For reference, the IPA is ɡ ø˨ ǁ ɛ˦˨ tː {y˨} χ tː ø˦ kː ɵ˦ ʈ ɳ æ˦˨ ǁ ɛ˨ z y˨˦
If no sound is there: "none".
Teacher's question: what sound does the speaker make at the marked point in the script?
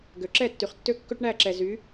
y˨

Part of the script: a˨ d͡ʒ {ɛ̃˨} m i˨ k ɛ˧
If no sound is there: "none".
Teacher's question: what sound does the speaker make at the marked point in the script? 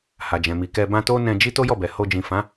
ɛ̃˨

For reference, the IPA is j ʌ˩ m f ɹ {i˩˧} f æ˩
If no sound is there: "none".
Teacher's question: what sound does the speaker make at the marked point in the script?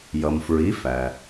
i˩˧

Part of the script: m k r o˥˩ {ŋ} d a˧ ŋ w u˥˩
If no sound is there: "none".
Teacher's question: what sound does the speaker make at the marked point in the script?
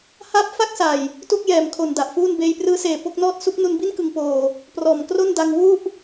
n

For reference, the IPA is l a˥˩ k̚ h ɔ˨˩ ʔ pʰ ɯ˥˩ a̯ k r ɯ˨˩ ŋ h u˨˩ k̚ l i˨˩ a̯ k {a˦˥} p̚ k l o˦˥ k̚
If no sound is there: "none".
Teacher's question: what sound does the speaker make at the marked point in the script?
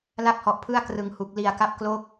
a˦˥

